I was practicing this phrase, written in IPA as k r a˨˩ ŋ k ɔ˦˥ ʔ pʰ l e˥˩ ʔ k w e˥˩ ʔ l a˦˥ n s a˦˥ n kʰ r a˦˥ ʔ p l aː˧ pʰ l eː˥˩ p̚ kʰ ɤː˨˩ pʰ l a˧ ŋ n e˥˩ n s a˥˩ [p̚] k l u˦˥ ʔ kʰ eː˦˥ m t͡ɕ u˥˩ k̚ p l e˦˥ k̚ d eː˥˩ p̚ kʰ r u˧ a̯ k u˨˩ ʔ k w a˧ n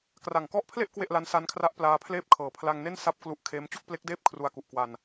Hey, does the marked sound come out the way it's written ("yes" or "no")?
yes